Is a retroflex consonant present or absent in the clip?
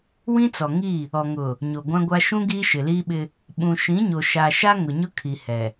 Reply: absent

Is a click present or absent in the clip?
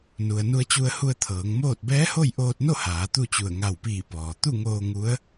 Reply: absent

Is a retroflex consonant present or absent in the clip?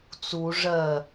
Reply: present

